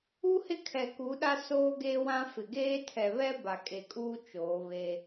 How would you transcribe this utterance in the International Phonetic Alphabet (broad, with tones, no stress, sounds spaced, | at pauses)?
u˦ h ɪ˦˨ kʰ ɛ˨ k u˨˦ ɗ a˦ s oː˦ ɡ eː˦ w ã˦ f ɪ˨ ɡ eː˦ tʰ ɛ˨ β ɛ˦ b a˨ kʼ e˨ kʼ uː˦ t͡ʃ oː˨˦ β e˦